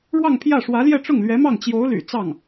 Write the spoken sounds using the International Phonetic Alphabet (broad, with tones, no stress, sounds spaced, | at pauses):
ɻ w ɑ˥˧ ŋ pʰ j ä˥˩ ʂ w ä˧˥ l j ɛ˥˧ ʈ͡ʂ ʊ˥˩ ŋ l ɥ ɛ˧˥ m ɑ˥˩ ŋ t͡ɕ j o˧˥ ʊ̯ l y̰˨˩ t͡s ɑ˥˩ ŋ